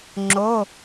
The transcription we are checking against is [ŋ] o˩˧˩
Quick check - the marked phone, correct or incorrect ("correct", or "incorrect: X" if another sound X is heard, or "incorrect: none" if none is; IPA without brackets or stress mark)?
incorrect: ŋ͡ǁ